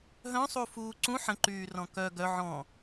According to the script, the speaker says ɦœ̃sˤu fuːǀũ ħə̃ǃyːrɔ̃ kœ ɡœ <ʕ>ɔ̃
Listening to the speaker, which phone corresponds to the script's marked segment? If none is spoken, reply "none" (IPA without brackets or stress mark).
ʕ